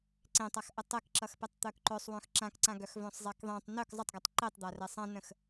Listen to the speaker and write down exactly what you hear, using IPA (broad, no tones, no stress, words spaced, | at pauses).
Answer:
ǀẽtˤaxʔə tˤɛkǁʌxpɛtˤ t̪œkǃœsˤ wœ̃xǁãkǀãɡœx vœ̃sˤzˤɛkðˤẽtˤ nœk zˤətˤɡʌtˤ ǃetˤd̪arɛ sˤãnə̃x